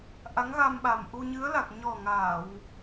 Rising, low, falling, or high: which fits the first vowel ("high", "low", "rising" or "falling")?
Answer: rising